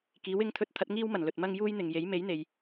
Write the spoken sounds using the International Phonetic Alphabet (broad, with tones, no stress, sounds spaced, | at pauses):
k iː˨˥ w ɪ˨˥ ŋ t̪ʰ ɵ˧ t̚ t̪ʰ ɐ˨˥ t̚ ŋ iː˥ w m ɐ˨˩ n l ɵ˨ t̚ m ɐ˥ ŋ j uː˥ j n̪ ɪ˨ ŋ j e˨˥ j m e˨˥ j n̪ e˨ j